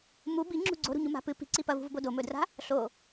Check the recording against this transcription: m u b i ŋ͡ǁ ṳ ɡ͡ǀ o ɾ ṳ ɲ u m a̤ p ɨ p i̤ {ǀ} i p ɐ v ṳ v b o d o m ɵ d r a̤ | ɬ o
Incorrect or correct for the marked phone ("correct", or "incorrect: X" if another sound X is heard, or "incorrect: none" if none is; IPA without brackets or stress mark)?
correct